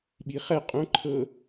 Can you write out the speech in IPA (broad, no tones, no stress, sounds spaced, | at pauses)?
ɓ i χ ɛ qʼ õ ǃʰ ɤ